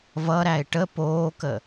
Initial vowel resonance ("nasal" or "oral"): oral